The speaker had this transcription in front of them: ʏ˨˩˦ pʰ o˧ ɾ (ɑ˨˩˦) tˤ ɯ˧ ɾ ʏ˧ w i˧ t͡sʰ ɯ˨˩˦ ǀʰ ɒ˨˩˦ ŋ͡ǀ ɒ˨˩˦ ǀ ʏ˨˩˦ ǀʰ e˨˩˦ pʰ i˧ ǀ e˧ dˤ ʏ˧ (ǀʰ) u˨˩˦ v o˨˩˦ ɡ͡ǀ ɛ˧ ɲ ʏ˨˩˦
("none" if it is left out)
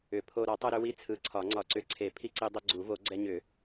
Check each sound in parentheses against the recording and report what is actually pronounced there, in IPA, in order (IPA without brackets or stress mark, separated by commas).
ɒ˨˩˦, ɡ͡ǀ